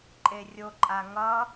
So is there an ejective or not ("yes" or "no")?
yes